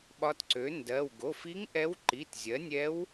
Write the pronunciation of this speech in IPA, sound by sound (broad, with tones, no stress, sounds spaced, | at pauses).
ɓ ɒ˧˥ t ǀ ø˩˥ n d ɜ˩˧˩ w ɡ o˩˧˩ f i˧˥ ŋ ʔ ɛ˧˥ w ǃ i˩˧˩ t zʲ ɜ˩˥ nʲ ɛ˧˥ w